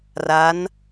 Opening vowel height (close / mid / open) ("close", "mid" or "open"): open